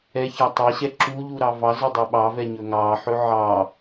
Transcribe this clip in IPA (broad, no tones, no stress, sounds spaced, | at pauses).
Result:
ɛ ç ɑ tˤ ɛ ɕ ɛ ǁ u ʎ u ɾ ɑ v ɑ z ɵ dˤ ɵ ɓ ɑ v ɛ ɲ ɵ ŋ ɑ ħ ɵ ʕ ɑ